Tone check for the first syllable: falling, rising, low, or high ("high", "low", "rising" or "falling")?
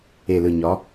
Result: low